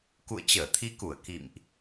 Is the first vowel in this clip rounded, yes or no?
yes